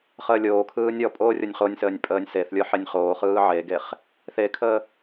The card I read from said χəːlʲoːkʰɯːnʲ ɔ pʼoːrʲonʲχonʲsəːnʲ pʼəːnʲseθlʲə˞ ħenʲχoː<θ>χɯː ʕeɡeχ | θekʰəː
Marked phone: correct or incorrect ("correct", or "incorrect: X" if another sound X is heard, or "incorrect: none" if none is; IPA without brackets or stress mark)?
incorrect: none